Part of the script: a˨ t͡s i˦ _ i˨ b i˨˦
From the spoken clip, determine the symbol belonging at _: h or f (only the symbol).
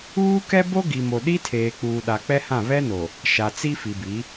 f